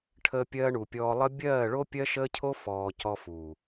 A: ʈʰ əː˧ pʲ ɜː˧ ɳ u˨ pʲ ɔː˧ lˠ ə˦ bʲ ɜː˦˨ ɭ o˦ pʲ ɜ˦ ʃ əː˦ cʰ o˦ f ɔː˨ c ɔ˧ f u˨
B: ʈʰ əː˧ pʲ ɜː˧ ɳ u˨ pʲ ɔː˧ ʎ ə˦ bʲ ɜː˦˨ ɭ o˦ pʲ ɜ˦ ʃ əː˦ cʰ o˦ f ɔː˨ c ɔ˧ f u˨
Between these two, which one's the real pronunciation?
A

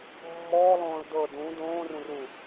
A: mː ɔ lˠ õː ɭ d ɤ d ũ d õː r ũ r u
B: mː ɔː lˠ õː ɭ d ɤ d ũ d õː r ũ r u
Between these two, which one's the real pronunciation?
B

